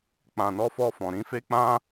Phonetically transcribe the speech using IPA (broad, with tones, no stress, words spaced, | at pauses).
k͡pã˨nɔ˧fɔ˧ fɔ̃˨ɾĩ˨˦fe˦ k͡pã˦